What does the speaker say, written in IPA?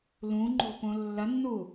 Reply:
l ũ ŋ͡ǃ o̤ p õ lː ɐ nː u

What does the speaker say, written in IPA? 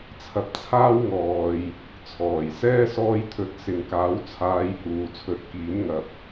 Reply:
t͡sʰ ɐ˧ p̚ t͡sʰ aː˥ w ŋ ɔː˨ j | t͡sʰ ɔː˨˩ j s ɛː˥ s ɔː˧ j t̪ʰ ɵ˨˥ t̚ s ɪ˨˧ ŋ k aː˨˥ w t͡sʰ aː˧ j h uː˨ t͡sʰ ɵ˨˥ t̚ k iː˨˥ n ŋ ɐ˨ p̚

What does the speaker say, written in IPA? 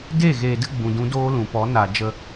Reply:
d e˦˨ ɣ eː˨ d ɨ˧ ɡ͡b ũ˨ d ũ˧ d oː˦ l ũ˨ p ɔ˨˦ n a˨ d͡ʒ ə˧

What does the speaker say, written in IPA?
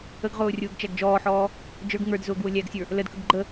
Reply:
ə ɡ ʁ ʊː rʲ ʊː ɡ t͡ʃ æ ɡ d͡ʒ ɔː ħ ɔː | d͡ʒ ə˞ ɡ ŋ ə˞ d z ʊː ɡ w ʊ lʲ æ ɡ sʲ ə˞ | l ə d k ə ɡ ɡ͡ǃ ə

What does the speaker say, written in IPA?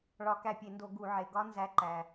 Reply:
ɭ ɒ˧˩˧ k æ˧˩ pʲ e˧˩˧ n d o˧˩˧ ɡ u˧˩˧ ʕ e˩ ɡ ɒ˦˥ n z æ˨˦ ǃ æ˩

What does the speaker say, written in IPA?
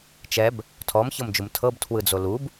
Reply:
t͡ʃ ɛ b | tʰ ɔ m ç ɤ m d͡ʒ u m tʰ ɤ b tʰ w ɯ d͡z o l u b

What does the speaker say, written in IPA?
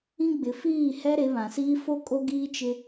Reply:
ĩ˦ ɡ͡b ɪ˨˦ f iː˦˨ h ɛ˦ ɾ e˨˦ β ã˨ s iː˦ f o˦ kʼ o˦ ɡ iː˦ t͡ʃ ɪ˦

